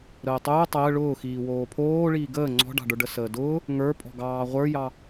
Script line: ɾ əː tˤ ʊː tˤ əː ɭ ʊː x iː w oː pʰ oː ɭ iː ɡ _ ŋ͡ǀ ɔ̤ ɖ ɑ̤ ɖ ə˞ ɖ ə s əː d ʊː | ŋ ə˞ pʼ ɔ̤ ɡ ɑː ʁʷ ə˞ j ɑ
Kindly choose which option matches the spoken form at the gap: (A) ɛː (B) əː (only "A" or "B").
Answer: B